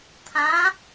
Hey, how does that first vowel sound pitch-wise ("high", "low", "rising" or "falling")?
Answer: rising